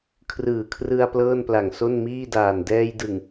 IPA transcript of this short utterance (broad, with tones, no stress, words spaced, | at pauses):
kʰrɯː˨˩kʰrɯ˧a̯ plɤː˥˩npla˨˩ŋ so˥˩nmiː˥˩daː˨˩n dɛː˧jdɯ˨˩ŋ